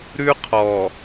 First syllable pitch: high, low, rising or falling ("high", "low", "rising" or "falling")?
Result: high